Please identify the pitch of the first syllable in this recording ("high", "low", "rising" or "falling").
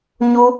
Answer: high